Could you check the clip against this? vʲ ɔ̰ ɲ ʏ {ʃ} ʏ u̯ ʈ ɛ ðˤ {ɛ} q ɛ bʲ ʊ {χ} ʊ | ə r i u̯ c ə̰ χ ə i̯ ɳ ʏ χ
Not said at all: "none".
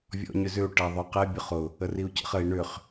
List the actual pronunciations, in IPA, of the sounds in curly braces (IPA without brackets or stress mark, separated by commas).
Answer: z, ʏ, χ